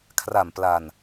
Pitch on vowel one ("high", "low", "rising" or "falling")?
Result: low